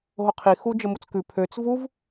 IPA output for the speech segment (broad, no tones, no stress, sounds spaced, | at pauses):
ɦ o qʰ i x u d͡ʒ ə m u t͡s k ʉ pʰ ø t͡s v u v